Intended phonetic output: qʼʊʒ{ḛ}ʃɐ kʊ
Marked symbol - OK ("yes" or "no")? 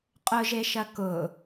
no